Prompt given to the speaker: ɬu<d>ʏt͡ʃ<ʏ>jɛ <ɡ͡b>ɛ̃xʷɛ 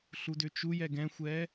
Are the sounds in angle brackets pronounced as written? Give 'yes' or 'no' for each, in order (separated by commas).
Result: yes, no, no